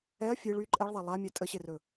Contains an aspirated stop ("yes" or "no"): no